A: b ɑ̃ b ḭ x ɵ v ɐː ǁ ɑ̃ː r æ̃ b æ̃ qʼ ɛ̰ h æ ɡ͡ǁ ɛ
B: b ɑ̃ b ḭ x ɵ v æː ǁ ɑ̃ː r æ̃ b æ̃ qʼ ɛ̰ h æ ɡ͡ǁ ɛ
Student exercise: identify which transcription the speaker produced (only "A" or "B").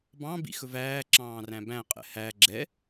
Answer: B